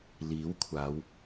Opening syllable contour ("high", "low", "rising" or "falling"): rising